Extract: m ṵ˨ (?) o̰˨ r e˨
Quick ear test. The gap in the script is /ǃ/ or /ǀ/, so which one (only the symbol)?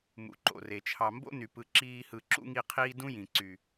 ǃ